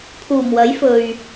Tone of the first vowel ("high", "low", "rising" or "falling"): low